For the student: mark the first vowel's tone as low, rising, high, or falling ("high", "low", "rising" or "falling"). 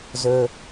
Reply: low